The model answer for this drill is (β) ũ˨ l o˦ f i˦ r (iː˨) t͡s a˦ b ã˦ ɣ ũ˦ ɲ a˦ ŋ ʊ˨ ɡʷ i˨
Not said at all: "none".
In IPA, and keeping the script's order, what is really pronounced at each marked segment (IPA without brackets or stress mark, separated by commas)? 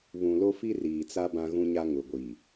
β, iː˨